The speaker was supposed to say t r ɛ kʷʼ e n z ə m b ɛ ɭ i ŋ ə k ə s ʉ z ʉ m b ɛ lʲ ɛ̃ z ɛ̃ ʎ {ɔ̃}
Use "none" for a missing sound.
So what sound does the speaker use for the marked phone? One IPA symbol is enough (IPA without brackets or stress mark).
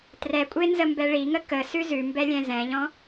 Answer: ɔ̃